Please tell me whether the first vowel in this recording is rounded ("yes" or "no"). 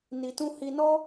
no